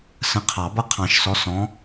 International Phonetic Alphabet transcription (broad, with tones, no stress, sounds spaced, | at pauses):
s ə̃˨˦ qʰ ɑ˨˩˦ b ʌ˥˨ qʰ ɑ̃˨˩˦ ʃ s ɔ˨˦ s ɔ̃˨˦